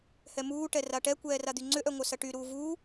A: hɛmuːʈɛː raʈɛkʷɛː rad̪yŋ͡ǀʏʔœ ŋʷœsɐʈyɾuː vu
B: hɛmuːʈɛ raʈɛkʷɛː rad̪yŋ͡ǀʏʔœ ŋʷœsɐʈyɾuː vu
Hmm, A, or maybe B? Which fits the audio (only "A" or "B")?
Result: B